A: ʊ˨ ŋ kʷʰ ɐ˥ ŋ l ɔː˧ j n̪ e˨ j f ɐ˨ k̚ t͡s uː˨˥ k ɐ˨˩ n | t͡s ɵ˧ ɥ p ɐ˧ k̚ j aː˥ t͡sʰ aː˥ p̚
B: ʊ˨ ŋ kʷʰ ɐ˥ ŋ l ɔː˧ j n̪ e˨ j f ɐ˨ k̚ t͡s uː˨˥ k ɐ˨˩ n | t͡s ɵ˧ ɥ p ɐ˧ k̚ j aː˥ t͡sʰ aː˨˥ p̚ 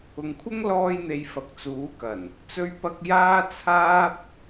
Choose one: A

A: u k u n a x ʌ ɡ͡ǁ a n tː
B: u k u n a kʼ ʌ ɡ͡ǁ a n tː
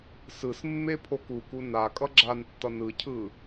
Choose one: B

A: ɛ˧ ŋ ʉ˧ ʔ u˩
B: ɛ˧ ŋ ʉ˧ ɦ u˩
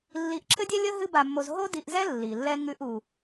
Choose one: A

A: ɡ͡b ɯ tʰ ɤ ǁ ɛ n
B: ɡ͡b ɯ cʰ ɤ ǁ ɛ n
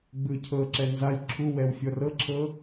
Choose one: B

